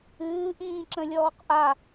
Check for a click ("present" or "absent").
present